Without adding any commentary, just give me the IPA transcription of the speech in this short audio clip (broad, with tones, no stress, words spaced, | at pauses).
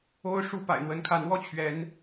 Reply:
o˦ʊ̯ʂu˥˨ pa̰˨˩ɪ̯n̪wə˨˦n kʰa˨˦nwɔ˦t͡ɕʰɥɛ˨˦n